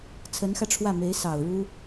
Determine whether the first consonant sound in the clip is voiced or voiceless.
voiceless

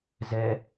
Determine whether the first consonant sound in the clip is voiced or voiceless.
voiced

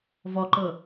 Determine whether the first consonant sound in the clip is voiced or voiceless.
voiced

